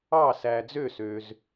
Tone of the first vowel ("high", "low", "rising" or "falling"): falling